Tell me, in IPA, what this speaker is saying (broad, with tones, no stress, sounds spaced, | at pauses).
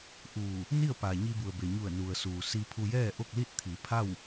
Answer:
ʔ uː˧˩ | n i˥˨ ə̯ p a˩ ɲ i˧ b u˩ ə̯ b e˩ ɲ u˧˩ ə̯ n u˩ ə̯ s uː˩ s i˧ pʰ u˧ j ɛː˥˨ ʔ o˥˨ k̚ l i˥˨ t̚ t̪ʰ i˩˧ pʰ a˥˨ w